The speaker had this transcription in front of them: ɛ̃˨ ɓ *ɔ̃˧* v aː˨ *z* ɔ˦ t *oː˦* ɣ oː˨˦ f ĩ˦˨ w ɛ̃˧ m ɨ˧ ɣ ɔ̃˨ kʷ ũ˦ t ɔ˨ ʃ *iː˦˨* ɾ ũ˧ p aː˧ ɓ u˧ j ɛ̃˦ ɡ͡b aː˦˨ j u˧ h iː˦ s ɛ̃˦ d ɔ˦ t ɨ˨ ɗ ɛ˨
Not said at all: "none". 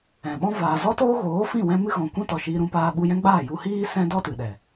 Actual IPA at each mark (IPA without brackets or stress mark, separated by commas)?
ɔ̃˦, z, oː˦, iː˧